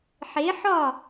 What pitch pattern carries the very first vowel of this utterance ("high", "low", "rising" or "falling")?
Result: rising